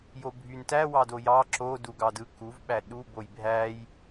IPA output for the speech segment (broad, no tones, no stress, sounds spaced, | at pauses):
j o bʱ y n t æ w ɑ d o j ɑ ǁ o d u ɡ ɑ d ɯ k u v ɓ æ ɗ u b o j bʱ æ j